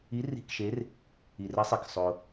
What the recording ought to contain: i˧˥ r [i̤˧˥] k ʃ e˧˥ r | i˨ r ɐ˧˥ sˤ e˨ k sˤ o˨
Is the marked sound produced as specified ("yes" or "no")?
yes